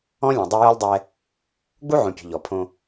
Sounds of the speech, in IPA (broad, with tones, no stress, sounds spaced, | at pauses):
ɔ̃˦ lʲ ɛ̃˨ dˤ œ˦ j ɔ˦ lʲ dˤ ɛ˦ | ɡ͡b u˦ ʕ õ˨ pʲ o̤˨ ʎ ɔ˨ pʰ õ˦